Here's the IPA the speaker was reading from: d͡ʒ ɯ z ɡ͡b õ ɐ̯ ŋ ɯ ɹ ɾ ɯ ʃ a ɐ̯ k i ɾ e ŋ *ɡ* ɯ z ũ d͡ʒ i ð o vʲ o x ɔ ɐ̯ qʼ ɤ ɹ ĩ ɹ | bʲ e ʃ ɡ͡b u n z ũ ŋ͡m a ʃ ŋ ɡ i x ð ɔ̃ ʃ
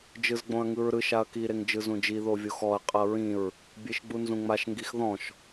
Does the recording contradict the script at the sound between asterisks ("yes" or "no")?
yes